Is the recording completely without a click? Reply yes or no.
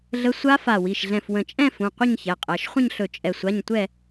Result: yes